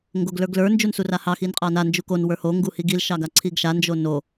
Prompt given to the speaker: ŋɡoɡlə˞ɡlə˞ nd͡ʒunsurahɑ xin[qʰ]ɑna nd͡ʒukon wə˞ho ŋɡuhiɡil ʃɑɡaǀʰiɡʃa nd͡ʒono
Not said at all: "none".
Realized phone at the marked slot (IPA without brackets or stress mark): qʼ